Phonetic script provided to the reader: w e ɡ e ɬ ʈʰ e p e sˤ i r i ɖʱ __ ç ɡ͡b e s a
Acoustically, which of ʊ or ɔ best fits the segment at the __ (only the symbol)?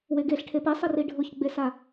ʊ